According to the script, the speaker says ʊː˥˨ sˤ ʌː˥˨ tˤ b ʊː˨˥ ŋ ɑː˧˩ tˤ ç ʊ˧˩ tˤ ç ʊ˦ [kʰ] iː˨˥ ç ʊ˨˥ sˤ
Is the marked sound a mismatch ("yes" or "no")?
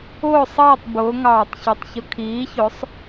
no